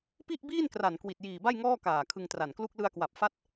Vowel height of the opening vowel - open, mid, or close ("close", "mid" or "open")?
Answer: close